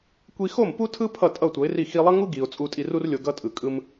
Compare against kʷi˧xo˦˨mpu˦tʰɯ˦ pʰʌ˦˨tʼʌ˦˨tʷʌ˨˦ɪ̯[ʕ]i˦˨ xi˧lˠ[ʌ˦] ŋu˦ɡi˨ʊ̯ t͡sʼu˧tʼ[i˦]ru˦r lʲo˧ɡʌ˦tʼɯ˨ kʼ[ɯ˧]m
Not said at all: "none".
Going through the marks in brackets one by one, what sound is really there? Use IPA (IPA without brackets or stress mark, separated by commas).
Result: r, ʌ˦, i˧, ɯ˧